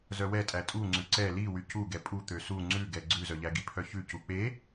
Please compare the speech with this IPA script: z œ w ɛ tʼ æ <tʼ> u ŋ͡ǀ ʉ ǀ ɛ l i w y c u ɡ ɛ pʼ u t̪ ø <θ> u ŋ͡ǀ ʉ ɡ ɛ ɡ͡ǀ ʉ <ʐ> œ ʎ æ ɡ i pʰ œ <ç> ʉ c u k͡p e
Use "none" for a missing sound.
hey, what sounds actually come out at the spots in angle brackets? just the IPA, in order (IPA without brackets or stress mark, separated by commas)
tʼ, s, z, ç